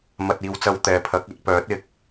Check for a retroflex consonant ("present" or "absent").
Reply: absent